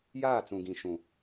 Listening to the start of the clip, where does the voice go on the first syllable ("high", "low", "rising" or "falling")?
falling